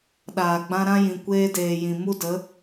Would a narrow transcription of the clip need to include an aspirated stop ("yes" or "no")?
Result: no